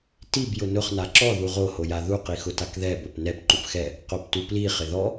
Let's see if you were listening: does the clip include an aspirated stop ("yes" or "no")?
no